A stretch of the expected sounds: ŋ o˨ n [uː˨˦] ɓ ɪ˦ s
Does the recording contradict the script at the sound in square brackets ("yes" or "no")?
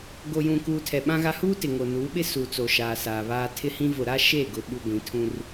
no